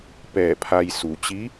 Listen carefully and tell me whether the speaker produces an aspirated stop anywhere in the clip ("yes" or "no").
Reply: yes